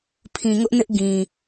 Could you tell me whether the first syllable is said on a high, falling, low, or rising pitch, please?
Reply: low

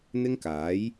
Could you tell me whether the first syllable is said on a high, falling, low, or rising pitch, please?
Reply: high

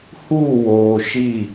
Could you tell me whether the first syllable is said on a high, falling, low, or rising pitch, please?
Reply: falling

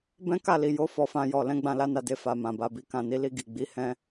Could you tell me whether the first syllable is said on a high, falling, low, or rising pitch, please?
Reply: high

